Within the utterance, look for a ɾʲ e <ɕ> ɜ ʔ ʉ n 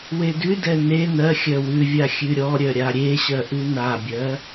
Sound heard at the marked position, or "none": ɕ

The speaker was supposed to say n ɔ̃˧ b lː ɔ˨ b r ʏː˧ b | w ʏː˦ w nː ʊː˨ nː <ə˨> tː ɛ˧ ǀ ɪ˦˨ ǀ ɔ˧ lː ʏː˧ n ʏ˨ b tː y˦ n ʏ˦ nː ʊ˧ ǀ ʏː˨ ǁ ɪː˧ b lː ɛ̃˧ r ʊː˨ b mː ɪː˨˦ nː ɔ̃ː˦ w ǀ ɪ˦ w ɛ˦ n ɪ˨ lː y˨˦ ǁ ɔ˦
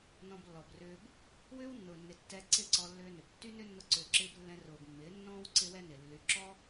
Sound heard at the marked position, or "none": ɪ˨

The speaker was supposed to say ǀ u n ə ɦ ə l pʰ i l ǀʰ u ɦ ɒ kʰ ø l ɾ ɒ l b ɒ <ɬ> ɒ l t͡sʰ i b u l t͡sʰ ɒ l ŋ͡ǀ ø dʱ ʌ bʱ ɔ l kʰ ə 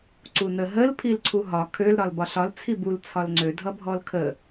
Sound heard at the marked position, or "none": ɬ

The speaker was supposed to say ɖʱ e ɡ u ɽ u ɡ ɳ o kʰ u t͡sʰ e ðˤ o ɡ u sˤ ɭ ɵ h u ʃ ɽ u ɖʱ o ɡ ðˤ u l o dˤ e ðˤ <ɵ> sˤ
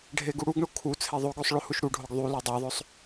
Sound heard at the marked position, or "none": ɵ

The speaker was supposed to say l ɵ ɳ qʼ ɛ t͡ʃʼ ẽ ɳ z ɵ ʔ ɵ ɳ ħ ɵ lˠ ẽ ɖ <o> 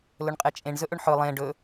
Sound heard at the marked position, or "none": ɵ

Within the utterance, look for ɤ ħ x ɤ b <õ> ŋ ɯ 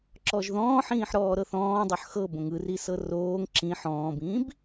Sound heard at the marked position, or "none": õ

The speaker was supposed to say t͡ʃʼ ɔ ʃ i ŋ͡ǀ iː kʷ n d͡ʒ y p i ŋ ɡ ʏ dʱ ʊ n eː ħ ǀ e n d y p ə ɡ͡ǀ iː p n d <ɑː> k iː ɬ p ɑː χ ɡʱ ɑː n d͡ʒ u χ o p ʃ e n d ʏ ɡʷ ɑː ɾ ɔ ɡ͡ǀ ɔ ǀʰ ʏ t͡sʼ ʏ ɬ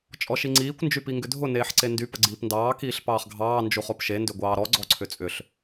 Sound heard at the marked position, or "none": ɑː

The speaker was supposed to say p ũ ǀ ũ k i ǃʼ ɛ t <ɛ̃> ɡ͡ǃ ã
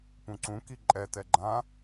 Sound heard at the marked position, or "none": ɛ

